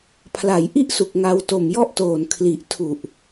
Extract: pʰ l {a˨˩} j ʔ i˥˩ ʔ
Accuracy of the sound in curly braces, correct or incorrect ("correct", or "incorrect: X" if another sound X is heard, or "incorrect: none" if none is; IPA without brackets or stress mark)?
incorrect: a˩˦